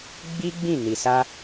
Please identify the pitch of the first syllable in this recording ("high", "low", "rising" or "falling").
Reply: high